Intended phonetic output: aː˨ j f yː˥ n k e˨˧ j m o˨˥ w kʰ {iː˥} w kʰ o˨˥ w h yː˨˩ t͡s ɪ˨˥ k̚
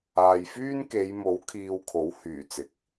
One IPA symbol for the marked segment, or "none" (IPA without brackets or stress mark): iː˧